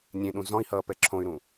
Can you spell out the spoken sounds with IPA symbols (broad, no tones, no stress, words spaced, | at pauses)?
nʲẽɗũ zɔ̃i̯hʌː pɛǁʰõy̯ɾũ